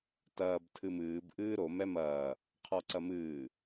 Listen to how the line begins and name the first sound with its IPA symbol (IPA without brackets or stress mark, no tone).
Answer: t